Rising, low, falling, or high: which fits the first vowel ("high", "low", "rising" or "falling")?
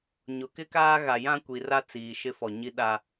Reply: rising